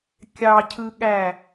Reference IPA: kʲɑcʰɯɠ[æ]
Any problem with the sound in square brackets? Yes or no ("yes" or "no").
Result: no